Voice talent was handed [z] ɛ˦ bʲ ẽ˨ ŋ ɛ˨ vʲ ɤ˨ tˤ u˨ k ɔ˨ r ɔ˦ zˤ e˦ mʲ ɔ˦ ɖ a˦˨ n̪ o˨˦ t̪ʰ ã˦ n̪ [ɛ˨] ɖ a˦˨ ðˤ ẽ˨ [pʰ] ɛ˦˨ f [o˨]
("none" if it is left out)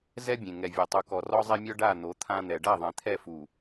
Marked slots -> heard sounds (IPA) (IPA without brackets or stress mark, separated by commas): z, ɛ˨, t̪ʰ, u˨